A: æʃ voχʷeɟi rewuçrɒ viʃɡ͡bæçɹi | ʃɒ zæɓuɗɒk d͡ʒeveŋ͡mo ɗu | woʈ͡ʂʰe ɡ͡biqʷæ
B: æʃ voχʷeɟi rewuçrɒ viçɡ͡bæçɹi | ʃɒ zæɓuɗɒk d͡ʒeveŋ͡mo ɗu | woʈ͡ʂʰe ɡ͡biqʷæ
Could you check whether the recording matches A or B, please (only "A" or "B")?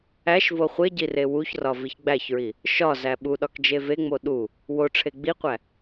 B